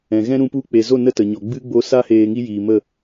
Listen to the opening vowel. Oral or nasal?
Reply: nasal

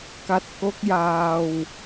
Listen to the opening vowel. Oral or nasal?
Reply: oral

